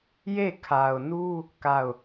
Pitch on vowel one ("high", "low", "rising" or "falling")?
falling